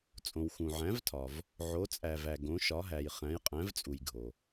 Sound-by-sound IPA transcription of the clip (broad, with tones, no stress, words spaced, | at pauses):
t͡sʼõ˨wxũ˨ʕæ̃˨˥vtʰɒ˨v | ʕo˨˥t͡sʼæ˨væ˨ ɡõ˨˥ʃɒ˨˥ɦæ˨j χæ̃˨˥jqʼæ̃˨˥vt͡sʼu˨j ɡʱo˨